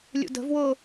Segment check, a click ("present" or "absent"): absent